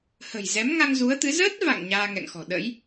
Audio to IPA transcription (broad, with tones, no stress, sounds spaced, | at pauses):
h ə̤˨˩ j z ɛ˨˦ m ŋ a˧ ŋ z u˨˦ ə̯ t̪ ɨ˨˦ z əː˦˥ t̚ v a̰˧˨ ŋ ɲ aː˧ ŋ ɛ̰˧˨ ŋ x ɔ̤˨˩ ɗ ə̰˧˥ j